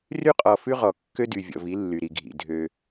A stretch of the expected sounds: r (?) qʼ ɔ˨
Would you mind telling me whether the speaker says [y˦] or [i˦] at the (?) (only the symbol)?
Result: y˦